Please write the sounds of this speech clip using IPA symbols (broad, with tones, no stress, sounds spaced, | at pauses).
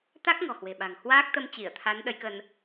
t̪ a˦˥ k̚ ŋ ɔ̤˨˩ h w e̤˨˩ ɓ a̤˨˩ ŋ h w aː˦˥ k̚ t̪ ə˧ m t͡ɕ i˧˩ ə̯ t̪ʰ a˨˦ n ɗ ə˨˦ j k ə˧ n